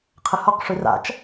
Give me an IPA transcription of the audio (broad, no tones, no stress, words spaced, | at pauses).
qʰəhɔq ʂyra̰t͡ʃ